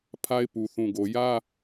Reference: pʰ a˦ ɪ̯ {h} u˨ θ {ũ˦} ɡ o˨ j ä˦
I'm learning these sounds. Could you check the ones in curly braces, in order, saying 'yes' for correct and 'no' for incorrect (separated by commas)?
no, no